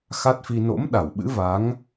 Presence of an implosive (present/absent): present